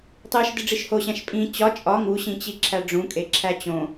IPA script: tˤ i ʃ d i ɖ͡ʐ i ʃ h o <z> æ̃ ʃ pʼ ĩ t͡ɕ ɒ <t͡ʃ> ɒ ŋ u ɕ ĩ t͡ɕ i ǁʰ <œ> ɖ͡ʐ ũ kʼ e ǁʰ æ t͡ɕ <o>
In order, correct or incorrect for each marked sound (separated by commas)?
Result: incorrect, incorrect, incorrect, incorrect